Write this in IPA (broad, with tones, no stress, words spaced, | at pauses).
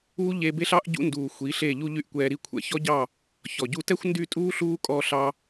uː˦ ʎe˧ be˦ɬɑ˦ʔ ɟṵ˦nduː˨ xʷi˨˦ɬe˦˨ʎu˦ ʎy˦ʔkʷɛː˧ɾi˦kʷʰɛ̰˦ çɔ˦ɟɑ˦˨ | çɔ˨ɟu˦ tɛ˦xʷndy˦˨tʼuː˦ ɬuː˦kʼɔː˧ɬɑ˧